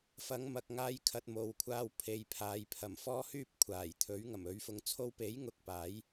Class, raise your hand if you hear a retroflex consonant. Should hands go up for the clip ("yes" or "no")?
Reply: no